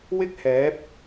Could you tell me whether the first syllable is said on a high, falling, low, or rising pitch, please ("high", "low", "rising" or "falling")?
high